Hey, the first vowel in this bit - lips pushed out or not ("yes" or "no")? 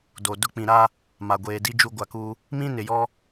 yes